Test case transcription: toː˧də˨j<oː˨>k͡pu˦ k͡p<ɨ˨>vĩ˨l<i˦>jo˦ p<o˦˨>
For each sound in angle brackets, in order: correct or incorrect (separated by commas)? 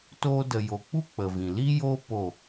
incorrect, incorrect, correct, correct